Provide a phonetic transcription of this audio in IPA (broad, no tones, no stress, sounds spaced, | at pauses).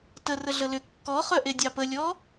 t ə r ə ɮ ə l ʏ kː ɔ χ œ ʔ e dʲ ɑ p ə lʲ ɔ